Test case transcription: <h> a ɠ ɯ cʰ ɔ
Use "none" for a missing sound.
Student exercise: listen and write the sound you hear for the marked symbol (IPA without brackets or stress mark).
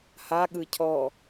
h